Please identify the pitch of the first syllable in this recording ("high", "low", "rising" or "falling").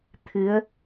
rising